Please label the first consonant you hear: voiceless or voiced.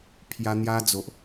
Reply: voiceless